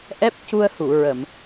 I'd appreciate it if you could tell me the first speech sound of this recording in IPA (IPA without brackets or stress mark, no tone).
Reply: ʔ